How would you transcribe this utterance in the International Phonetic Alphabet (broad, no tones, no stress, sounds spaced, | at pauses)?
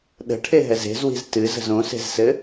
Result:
ɗ ə̤ ʈʰ e ɦ ɛ z e̤ z w i̤ z t ɨ z ə̤ z õ s e̤ z s ɘ